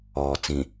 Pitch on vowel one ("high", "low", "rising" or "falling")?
low